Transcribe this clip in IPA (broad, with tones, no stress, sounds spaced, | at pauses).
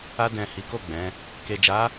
a˧ d ɛ̃˨ h i˨˦ k o˦˨ ɡ͡b ɛ̃˨˦ | k e˨ d͡ʒ a˨˦